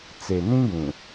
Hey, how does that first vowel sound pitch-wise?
low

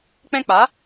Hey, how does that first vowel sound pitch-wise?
high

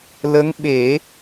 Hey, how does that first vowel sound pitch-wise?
rising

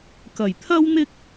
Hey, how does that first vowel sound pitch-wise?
low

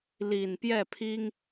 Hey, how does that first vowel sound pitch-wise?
low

